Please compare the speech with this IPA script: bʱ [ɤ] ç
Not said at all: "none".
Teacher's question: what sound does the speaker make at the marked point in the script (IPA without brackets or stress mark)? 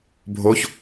o